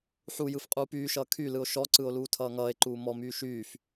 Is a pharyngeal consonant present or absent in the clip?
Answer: present